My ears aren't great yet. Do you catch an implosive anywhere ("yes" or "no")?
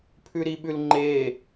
yes